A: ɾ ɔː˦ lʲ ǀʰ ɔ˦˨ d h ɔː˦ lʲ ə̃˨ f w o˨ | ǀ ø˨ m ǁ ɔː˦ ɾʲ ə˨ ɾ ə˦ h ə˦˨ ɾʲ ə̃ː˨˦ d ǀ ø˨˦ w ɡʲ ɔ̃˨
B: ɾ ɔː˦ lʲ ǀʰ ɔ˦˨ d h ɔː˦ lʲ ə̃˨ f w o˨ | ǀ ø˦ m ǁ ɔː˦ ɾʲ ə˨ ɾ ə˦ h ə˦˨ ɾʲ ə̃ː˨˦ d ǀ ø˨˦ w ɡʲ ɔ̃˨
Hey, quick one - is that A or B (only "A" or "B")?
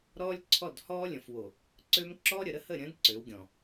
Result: B